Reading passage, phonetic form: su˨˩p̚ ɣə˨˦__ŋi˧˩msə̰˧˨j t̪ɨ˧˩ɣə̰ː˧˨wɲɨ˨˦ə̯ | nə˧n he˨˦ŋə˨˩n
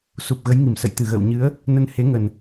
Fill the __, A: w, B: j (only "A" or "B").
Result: B